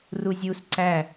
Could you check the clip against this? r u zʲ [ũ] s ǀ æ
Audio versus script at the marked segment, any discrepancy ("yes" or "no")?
yes